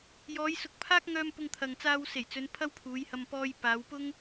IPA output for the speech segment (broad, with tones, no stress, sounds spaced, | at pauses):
j ɔː˨˧ j s ʊ˨ k̚ pʰ aː˥ k̚ ŋ œː˧ m p ʊ˧ ŋ t̪ʰ ɐ˨ ŋ t͡s aː˧ w s e˨˩ j t͡s ɵ˨˧ n pʰ ɐ˥ w pʰ uː˨˧ j h ɐ˧ m p ɔː˧ j p aː˨˧ w p ʊ˥ ŋ